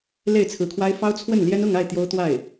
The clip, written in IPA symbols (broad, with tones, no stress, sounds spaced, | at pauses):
l e˥˩ ɪ̯ t͡sʰ ɹ̩˧˥ kʰ w a˥ ɪ̯ f ɑ˥ ʊ̯ t͡sʰ w ə˥˩ n l j ɛ˥ n ʊ˥˧ ŋ a˥˩ ɪ̯ t̪ j o˥ ʊ̯ t̪ w a˥˩ ɪ̯